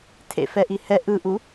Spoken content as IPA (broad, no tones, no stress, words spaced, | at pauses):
tʰḛfɛʔi hɛ ʔɯʔu